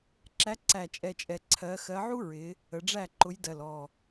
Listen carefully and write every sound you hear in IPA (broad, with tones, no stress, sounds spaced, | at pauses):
ǁ æ˨˦ ǀ æ˨˩ t͡ʃʼ ɛ˨˩ t͡ʃʼ ɛ˨˩ ǀʰ ɜ˨˦ x ɜ˨˦ ʕ u˥ ɹ ɪ˨˦ | ə˨˦ ɖ͡ʐ æ˥˨ ǃ ʊ˨˦ j d ɜ˨˩ l ɔ˨˩